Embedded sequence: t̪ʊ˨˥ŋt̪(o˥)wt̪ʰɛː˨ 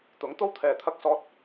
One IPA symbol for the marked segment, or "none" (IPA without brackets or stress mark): o˥